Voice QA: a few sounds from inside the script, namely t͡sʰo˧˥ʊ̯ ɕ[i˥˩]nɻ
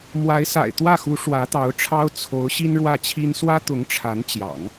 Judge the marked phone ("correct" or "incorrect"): incorrect